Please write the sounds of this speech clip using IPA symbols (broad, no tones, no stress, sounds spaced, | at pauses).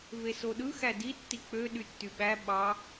v e s o ɗ ɯ x æ d i tː i k͡p ø ɗ y tː y ɓ æ ɓ ɑ